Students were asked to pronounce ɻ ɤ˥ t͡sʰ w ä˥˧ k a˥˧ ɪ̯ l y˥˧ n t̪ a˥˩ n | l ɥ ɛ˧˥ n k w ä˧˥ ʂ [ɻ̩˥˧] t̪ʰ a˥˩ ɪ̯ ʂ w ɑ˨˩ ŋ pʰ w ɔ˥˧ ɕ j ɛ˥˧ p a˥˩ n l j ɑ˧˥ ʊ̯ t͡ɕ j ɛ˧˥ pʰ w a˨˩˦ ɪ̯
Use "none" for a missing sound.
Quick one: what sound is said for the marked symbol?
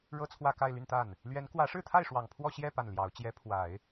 ɻ̩˥˧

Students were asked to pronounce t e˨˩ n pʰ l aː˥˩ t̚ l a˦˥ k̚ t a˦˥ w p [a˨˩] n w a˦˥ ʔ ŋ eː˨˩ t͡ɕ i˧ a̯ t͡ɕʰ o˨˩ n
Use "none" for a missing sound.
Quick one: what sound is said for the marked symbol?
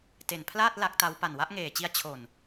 a˨˩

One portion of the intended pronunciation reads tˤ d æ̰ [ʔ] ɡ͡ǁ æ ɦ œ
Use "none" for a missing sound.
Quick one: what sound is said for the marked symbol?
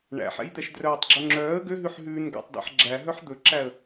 ħ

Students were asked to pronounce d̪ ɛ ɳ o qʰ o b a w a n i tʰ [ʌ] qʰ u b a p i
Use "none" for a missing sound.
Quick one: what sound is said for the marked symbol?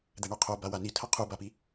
ʌ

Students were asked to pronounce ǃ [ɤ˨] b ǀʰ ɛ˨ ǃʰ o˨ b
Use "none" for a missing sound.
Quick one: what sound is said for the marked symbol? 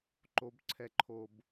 o˨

